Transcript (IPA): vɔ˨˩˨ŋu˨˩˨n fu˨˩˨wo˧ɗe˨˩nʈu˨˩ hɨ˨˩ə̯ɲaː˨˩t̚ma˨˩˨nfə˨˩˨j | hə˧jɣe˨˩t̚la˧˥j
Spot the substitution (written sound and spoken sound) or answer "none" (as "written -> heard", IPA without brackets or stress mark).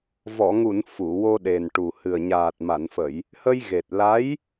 none